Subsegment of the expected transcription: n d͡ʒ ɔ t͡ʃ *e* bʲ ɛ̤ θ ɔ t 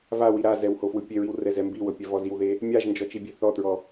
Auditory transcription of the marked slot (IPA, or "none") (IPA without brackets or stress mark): i